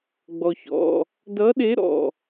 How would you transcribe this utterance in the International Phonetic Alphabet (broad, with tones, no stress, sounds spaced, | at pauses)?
ɡ͡b ɔ˧ ç ɔ̰˧˥˧ | d ʌ˧˥ ɗ e˧˥ ɾ ɔ̰˧˥˧